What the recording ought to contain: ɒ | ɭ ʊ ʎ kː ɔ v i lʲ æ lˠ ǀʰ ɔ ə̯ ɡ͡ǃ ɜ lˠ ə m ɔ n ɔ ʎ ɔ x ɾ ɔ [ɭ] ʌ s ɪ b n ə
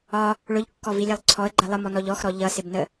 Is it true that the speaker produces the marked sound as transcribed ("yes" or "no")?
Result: no